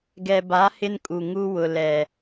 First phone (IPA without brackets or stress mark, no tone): ɡ